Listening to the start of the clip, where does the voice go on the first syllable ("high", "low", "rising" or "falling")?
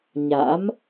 rising